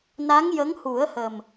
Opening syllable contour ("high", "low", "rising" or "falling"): rising